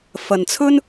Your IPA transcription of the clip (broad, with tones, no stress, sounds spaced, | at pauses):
f ɐ˨ n t͡sʰ ɵ˥ n